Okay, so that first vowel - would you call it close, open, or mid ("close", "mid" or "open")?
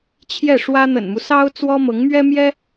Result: mid